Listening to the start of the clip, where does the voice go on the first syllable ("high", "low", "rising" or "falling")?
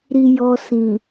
low